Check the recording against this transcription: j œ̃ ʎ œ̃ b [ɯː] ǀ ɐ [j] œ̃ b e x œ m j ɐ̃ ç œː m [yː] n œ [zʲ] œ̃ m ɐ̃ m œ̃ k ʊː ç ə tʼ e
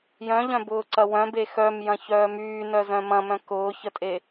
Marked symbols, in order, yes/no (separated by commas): no, no, yes, no